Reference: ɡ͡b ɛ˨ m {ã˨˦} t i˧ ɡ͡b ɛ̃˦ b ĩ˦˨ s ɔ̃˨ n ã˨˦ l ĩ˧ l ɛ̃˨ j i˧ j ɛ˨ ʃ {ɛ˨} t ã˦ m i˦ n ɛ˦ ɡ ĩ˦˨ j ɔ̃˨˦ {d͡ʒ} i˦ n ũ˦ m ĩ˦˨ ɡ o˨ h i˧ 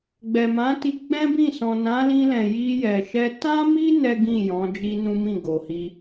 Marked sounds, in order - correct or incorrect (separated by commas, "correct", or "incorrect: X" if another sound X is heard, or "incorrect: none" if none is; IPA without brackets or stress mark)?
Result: correct, incorrect: ɛ˧, correct